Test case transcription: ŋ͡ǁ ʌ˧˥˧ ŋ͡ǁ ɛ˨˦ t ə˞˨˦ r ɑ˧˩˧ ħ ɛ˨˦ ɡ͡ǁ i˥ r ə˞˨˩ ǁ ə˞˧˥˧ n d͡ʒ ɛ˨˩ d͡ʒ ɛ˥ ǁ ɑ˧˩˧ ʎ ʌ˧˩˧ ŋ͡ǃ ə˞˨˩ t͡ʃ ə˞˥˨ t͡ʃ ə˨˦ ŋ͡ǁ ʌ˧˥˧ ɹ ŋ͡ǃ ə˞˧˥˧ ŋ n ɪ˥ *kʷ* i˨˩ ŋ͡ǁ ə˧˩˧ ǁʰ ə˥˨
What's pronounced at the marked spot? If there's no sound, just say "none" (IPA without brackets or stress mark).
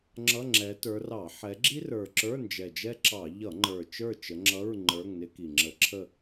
k